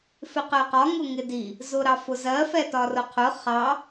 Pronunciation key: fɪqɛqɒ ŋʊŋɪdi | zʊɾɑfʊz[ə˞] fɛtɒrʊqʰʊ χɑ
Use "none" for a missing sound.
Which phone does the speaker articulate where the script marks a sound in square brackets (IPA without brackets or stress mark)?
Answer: ɜ